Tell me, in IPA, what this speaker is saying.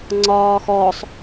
ŋ͡ǀ ɒː x ɔ sˤ

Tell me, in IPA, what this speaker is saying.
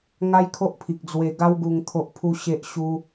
ŋ a˦ j kʰ o˦ ʔ pʰ i˨ k̚ d͡z w e˧ ɡ a˦ w ɡ u˧ ŋ t̪ʰ o˦ ʔ pʰ u˦ ɕ e˦ ʔ ɕ u˧

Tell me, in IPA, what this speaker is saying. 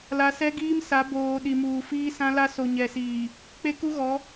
l a˨ s ɛ˦ ɡ iː˦ m s a˨˦ b oː˨ ɗ i˨ m uː˨ f iː˦ s ã˦ l a˦ s o˨ ɲ ɛ˨ s iː˨ | k͡p e˦ k u˦ ɣ ɔ˨˦

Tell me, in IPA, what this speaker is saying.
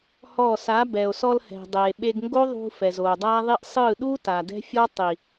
h ɔ˦˨ s a˨˦ b ɛ˨ o̯ s ɔ˧ l h ɛ̤˨ dˤ eː˨ ɓ e˧ ɡ ŋ ɡ o˦ ðˤ ṳ˧ f ɛ˨ z oː˨ dˤ aː˦ ðˤ i˦ ʔ sˤ ɯ˦˨ ɗ u˦ t a˨ d ɛ̤˦ fʲ ɔ˦ tˤ i˨

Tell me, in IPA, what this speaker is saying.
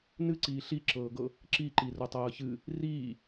n ɨ ǀ iː ɬ i ǁ ɤː ɡ ɤ | ǁ i ǃ i r o tˤ ɤː ç ɨ | r iː

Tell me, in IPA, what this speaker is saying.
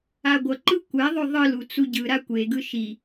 a ɡʷ ʌ ǃ ɯ kʷ ɛ ðˤ o ðˤ ɯ l u t͡s u ɟ ɯ ɾ a kʷ e ɡ ɯ ʃ i

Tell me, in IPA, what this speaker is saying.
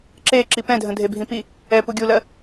ǁ e ǁ i p ɛ̃ dʱ ə̃ dʱ e bʱ ĩ p i | ɛ p u ɡʲ u l ɜ

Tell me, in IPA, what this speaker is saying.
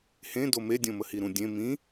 h ẽ d o m e dʲ õ m ə h i ɾ ũ dʲ ẽ m ĩ

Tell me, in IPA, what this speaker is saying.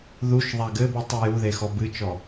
ð u ʃ ðˤ a ɡ ɘ b ɨ tˤ ɨ j u ð e x ɔ b ɨ t͡ʃ ɔ

